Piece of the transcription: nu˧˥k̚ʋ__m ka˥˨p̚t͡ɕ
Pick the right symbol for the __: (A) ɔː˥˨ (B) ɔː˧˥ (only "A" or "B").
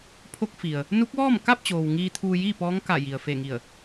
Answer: A